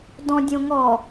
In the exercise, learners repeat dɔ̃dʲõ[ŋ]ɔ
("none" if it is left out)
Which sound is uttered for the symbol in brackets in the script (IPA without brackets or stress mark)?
ŋ